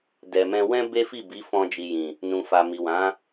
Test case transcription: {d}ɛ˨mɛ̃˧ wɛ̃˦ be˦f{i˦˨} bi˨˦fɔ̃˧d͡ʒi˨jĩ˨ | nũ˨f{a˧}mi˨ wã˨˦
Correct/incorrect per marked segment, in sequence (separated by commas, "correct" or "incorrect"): correct, correct, incorrect